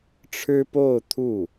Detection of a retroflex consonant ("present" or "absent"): present